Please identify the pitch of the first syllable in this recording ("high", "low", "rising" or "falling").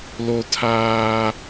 high